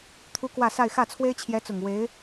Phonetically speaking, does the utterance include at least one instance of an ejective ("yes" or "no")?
no